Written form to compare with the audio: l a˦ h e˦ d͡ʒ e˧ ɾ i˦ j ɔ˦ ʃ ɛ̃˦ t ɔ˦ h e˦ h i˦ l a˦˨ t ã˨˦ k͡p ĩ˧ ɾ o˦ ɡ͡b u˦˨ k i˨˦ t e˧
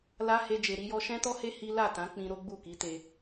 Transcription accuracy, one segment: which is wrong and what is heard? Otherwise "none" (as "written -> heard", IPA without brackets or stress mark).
none